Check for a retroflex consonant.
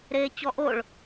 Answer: present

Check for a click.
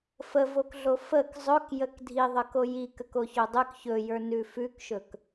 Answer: absent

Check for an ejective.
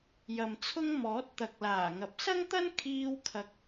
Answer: absent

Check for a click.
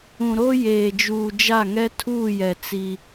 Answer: absent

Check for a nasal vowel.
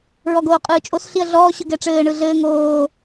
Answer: absent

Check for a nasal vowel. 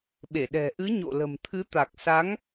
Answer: absent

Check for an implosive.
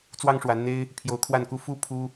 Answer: absent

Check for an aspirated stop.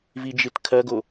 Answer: present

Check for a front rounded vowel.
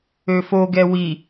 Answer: present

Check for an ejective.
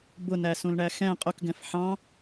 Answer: present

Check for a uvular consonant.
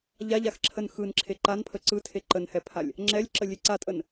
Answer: absent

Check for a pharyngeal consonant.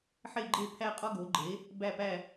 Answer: present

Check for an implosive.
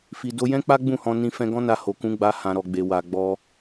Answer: absent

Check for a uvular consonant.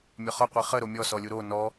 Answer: present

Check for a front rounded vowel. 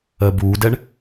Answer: absent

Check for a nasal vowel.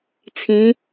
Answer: present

